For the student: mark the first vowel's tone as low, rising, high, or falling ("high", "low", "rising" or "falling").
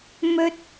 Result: high